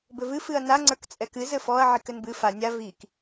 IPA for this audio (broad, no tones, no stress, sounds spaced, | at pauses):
b ɘ v ɨ f ɨ ɐ̯ n a ŋ͡ǀ ə˞ k t͡sʼ ɛ k ɨ z ɘ f ɔ ɐ̯ ʕ i k ɘ n b ɨ f a nʲ a v i k